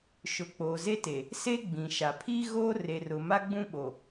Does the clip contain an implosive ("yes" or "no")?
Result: yes